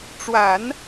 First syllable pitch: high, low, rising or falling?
low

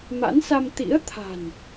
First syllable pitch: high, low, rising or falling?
rising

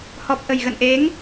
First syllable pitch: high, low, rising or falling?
low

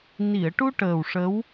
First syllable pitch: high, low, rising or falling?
low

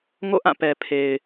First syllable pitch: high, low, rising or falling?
falling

